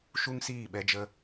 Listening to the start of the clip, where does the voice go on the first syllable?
high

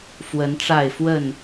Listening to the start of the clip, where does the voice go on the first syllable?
rising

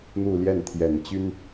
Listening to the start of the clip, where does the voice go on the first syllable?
falling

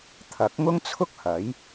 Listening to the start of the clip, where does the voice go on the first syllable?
rising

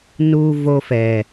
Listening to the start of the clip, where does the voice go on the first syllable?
high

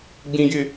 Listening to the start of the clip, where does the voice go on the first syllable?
high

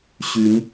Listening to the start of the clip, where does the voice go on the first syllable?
rising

